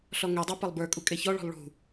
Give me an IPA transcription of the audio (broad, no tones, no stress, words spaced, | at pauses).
ɬɔŋedˤo pɐlˠbə˞kʼu kʼeçɔɭɔ̤lˠ ɭṳ